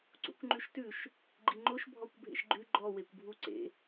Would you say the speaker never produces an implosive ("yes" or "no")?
yes